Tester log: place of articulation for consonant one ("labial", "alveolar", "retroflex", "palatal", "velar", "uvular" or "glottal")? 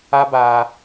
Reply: labial